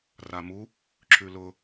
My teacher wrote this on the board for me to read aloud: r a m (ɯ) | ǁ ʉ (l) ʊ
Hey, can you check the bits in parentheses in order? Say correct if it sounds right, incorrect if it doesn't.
incorrect: u, correct

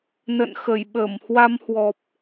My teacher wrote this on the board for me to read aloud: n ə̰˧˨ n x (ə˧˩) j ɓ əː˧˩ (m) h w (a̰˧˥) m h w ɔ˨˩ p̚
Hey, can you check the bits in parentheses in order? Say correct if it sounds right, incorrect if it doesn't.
correct, correct, incorrect: a˧

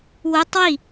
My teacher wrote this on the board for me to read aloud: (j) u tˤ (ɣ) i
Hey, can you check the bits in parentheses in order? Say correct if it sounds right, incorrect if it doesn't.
incorrect: w, incorrect: w

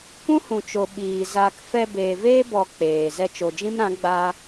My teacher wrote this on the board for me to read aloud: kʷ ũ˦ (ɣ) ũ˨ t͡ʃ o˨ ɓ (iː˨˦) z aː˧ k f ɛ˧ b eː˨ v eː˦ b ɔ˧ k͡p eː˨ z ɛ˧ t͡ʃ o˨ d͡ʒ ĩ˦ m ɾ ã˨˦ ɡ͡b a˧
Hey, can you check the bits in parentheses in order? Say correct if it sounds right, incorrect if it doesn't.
incorrect: h, incorrect: iː˨

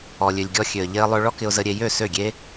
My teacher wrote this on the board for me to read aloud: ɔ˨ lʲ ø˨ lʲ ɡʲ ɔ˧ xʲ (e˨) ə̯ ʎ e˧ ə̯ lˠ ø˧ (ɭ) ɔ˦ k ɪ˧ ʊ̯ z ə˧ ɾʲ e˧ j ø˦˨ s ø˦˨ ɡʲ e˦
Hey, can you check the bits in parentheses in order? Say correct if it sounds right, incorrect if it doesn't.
incorrect: ø˨, correct

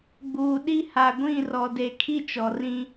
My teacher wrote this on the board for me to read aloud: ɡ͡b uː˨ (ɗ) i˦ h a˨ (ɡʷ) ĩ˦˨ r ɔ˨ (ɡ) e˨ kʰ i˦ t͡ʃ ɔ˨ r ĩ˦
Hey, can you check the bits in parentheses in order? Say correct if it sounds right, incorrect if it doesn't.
correct, correct, incorrect: d

